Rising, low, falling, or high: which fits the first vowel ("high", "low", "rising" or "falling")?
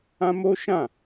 high